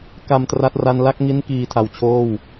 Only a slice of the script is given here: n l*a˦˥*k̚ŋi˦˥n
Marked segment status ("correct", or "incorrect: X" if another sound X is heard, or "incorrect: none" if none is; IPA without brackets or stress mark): correct